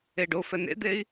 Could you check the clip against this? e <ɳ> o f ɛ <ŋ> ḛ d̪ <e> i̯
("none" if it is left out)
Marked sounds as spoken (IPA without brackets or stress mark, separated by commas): ɖ, n, e